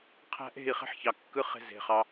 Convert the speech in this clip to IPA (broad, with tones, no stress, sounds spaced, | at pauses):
qʰ æ̤˧ ʔ e̤˦˨ i̯ χ e̤˦ ħ ç ɑ˨ kː ɯ˦ χ e̤˧ z e̤˨ χ ɑ˧